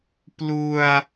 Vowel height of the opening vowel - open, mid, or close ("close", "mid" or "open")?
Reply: close